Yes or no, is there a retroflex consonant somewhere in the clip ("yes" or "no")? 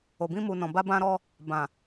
no